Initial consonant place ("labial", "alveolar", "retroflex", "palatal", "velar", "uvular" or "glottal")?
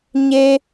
palatal